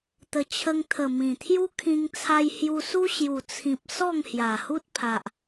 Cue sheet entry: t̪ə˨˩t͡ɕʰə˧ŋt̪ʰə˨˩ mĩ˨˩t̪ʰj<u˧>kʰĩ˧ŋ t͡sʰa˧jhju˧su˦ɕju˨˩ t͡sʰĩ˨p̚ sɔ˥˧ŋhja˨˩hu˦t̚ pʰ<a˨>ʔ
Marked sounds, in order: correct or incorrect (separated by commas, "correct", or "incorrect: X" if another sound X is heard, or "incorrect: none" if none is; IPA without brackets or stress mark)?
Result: incorrect: u˦, correct